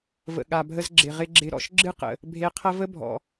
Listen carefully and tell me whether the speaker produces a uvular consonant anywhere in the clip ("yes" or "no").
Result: yes